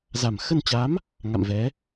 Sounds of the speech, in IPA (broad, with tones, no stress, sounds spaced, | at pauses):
z a˨˩ m x ə˧ n t͡ɕ a˨˦ m | ŋ a̰˧˨ m v ɛ˨˦